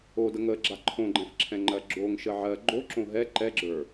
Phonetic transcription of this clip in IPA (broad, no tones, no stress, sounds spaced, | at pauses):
o d ə ŋ ə ɡ͡ǁ a ǃʰ õ ɡ͡ǃ ɛ̃ f ǁʰ ɛ̃ ŋ͡ǃ ɜ ɡ͡ǁ o ŋ ʃ ə ʕ ɜ ɡ͡ǃ o ǁ õ ɦ ɛ ǃ ɛ ɡ͡ǁ ə˞